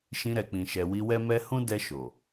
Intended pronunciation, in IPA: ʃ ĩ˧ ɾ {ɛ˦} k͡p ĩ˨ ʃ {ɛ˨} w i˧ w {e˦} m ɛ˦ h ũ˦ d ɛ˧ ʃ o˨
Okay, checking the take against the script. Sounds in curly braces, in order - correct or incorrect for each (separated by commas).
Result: incorrect, correct, incorrect